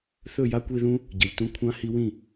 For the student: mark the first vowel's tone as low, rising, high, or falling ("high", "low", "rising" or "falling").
falling